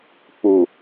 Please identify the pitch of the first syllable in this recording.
low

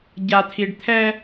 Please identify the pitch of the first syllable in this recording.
low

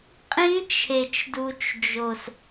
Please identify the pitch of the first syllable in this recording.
high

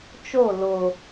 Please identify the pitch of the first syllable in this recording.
falling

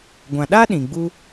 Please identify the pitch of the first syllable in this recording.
low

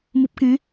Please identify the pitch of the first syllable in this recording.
low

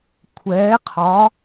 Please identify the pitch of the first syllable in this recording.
rising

